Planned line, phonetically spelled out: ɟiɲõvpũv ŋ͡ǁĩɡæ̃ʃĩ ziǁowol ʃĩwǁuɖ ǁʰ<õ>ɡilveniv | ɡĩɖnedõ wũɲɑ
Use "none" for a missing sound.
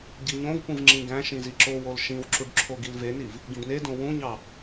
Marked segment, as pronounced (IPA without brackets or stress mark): o